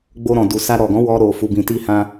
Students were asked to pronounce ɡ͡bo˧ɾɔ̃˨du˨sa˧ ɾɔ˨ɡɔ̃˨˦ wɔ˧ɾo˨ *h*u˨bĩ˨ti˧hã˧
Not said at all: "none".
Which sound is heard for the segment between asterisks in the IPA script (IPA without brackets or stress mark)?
f